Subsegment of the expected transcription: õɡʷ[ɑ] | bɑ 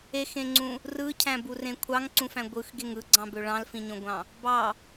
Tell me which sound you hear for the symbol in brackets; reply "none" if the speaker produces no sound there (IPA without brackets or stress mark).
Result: ɑ̃